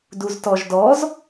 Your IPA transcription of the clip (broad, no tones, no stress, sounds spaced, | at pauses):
d u z t ɔ ʒ d ɔ z